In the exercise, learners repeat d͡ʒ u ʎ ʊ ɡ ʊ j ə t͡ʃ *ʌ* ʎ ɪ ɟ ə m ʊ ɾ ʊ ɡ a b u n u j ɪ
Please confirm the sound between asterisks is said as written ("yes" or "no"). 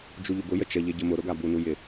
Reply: no